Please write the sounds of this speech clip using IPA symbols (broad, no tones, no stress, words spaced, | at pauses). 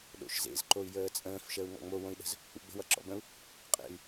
ɗo̰ʃzḛz ǃoy̯jəːt͡sʼə̃ːf ʃəːu̯ŋɔ̰ŋ͡mo wõi̯ɗə̤z | ṵɡ͡bə̤ wʌǁɔ̰bə̃u̯ | qʼḛy̯